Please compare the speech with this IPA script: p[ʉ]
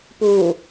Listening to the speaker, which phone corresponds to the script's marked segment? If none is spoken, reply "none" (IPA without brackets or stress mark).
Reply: u